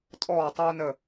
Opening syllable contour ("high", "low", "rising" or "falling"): falling